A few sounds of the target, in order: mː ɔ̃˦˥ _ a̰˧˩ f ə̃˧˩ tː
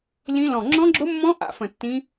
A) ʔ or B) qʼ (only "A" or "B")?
A